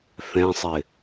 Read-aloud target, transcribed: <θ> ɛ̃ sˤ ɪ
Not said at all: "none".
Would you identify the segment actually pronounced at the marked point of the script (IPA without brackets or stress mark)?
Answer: θ